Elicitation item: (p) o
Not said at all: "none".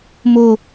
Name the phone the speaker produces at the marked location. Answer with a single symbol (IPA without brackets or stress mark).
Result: m